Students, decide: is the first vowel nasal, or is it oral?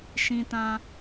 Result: nasal